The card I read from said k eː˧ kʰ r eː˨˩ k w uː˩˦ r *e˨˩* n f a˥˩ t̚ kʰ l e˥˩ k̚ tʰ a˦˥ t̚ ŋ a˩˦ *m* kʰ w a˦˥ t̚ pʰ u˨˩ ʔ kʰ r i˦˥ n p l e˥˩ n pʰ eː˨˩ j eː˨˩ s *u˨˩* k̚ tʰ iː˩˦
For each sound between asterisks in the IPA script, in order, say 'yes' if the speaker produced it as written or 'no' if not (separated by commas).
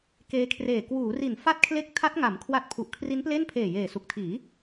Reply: no, yes, yes